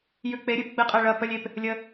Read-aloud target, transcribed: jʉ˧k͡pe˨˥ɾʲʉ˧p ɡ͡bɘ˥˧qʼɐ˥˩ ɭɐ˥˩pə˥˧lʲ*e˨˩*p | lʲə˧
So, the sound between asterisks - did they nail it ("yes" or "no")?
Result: yes